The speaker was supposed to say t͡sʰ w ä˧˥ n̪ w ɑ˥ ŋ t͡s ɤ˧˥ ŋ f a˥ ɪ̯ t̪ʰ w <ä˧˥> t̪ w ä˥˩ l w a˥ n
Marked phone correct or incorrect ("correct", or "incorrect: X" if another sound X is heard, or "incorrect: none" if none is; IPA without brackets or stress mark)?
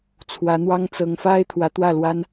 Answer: correct